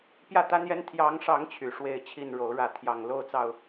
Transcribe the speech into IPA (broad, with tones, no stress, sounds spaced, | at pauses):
p j ä˥˨ t̪ a˦ n j ɛ˦ n t̪ʰ j ɑ˨˦ ŋ ʂ ɑ˨˦ ŋ t͡ɕʰ y˨˩ ʂ w e˥˨ ɪ̯ t͡ɕʰ i˥˨ n ɻ o˨˦ ʊ̯ ɻ ä˥˨ t̪ʰ j ɑ˨˩ ŋ l o˥˨ ʊ̯ t͡s ɑ˥˨ ʊ̯